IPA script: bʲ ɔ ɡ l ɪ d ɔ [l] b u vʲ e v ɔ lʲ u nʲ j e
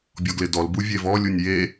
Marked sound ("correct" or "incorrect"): correct